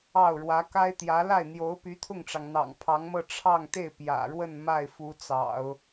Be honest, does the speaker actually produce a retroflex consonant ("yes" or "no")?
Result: yes